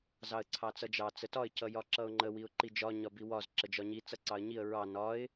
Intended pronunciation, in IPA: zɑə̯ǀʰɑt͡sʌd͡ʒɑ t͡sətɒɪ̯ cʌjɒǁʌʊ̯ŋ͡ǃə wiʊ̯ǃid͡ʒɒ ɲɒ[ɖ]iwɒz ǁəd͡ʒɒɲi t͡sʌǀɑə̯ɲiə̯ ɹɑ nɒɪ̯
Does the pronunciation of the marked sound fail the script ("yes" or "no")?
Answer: yes